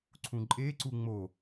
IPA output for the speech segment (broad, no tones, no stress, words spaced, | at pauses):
ǀʰũǃʼeǀu ŋ͡mo